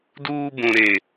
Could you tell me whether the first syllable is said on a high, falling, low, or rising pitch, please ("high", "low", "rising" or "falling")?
high